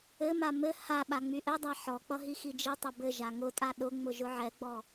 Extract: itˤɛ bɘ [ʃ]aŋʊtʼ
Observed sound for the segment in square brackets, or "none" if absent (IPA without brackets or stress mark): ʒ